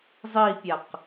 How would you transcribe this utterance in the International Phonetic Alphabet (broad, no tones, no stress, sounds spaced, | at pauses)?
zˤ i pʲ a q